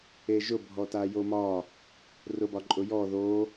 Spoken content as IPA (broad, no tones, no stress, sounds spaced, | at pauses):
e ʒ ʊ bʱ ɔ t a j o m ɒ | r ʊ b ɒ ǃʼ ʊ j ɔ ð o